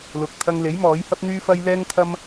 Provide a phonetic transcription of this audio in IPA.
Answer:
l ʊ˨ k̚ t̪ʰ ɐ˧ ŋ l e˨˥ j m ɔː˨˥ j h ɐ˥ p̚ n̪ yː˥ f ɐ˥ j l ɛː˥ ŋ t̪ʰ ɐ˥ m

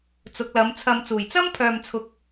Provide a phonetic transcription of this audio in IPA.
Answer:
t͡s ʊ˨˥ k̚ l ɐ˨˥ m t͡sʰ ɐ˨ m t͡s uː˨˩ j t͡s ɐ˥ m pʰ œː˨ m t͡sʰ ʊ˨ k̚

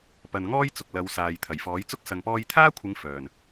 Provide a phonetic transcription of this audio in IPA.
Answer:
p ɐ˨ n ŋ ɔː˥ j t͡s ʊ˨ k̚ l ɐ˨˧ w s aː˨ j t̪ʰ ɐ˨˩ j f ɔː˨˥ j t͡s ʊ˥ k̚ s ɐ˨ ŋ p ɔː˧ j t̪ʰ aː˥ kʷʰ ɪ˨˧ ŋ f œː˨˩ n

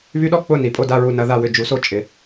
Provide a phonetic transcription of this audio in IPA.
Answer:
β y˦ ɗ ɔ˥˨ k͡p ʊ˥˨ n i˩ pʼ o˥˨ d a˥˨ ɹ u˧˩ n ɐ˩˧ ð a˧˩ w ʏ˧˩ d͡ʒ u˩˧ s o˧˩ t͡ʃʼ ɪ˩˧

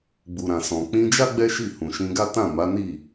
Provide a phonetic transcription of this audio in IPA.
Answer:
ɡ͡b u˨ ɾ ã˨ s ɔ̃˨ k͡p ĩ˧ d͡ʒ a˦ ɡ͡b ɛ˦ ʃ i˦˨ h ũ˨ ʃ ĩ˧ ɡ a˦ t ã˦˨ m a˨˦ n i˦˨

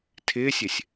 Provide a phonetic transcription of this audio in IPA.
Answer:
tʰ ɪː sʲ ɪ sʲ

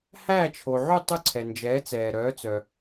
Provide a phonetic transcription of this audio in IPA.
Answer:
h æː˥˩ t͡ʃʰ o˩ ʕ y˥˩ tˤ ʉ˥˩ ǀʰ ɛ˩ n d͡ʒ ɛː˩˥ t͡s ɛː˩ ɾ œː˩˥ t͡s œ˩

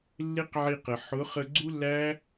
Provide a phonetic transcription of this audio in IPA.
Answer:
lː ɪ˦ q ʕ i˧ q ə˨ ħ ʊ˨˦ χ ə˧ ɡ͡ǀ u˦ lː æ˦

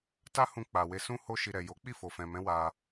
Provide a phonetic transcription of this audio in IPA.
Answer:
t a˦ h ũ˧ k͡p a˨ w e˧ s ũ˦ h o˦ ʃ i˧ ɾ ɛ˨ j o˨˦ k͡p i˦˨ f o˨ f ɛ̃˨ m ɛ̃˨˦ w a˧

